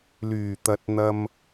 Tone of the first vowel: low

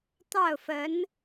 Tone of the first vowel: falling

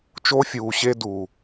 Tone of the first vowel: high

